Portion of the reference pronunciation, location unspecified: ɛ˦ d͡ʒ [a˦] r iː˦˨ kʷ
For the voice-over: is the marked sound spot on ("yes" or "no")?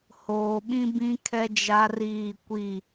yes